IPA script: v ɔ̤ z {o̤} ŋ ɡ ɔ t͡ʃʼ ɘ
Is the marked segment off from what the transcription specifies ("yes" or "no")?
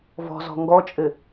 yes